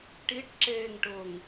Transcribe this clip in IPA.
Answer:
ʈ i ʈ ǁ eː ŋ ʈ ʊː ŋ

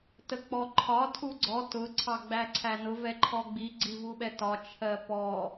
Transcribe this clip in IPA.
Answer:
t ə k͡p ɔ ǃʰ ɒ tʰ u ɡ͡ǀ ɔ t ʊ ǀʰ ɑ ɡ͡b æ ǀʰ æ n ʊ v ɛ ǃʰ ɔ ɡ͡b i ɡ͡ǀ i v u ɓ ɛ t ɒ t͡ʃʰ ɜ p ɔ

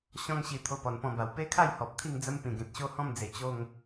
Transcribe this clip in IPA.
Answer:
ɕ ɔ̃˦ ŋ ɕ i˧ t̪ʰ o˧ p ɔ˨˩ n p ɔ̃˧ b a˨˩ w p e˦ kʰ a˥˧ j h ɔ˨ p̚ t̪ʰ i˥˧ ŋ d͡z ə˦ m p ĩ˨˩ ɡ ẽ˨ t̚ ɕ o˦ h ɔ̃˥˧ m d͡z e˨˩ t͡ɕ o˥˧ ŋ

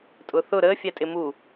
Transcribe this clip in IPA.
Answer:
tʼ ʊ θ ʊ ɾ əː fʲ æ tʼ ɪ m u

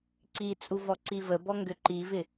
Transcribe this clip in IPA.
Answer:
ǀ i t͡sʼ u v ɔ ǀ i v ə b ɔ ŋ ɡ ʏ ǃ i v ɪ

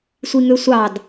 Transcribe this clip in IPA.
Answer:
sʷ i ŋ ø sʷ ɑ d

